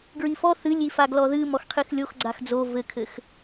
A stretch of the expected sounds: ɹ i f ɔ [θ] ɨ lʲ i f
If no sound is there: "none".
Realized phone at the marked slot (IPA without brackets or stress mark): θ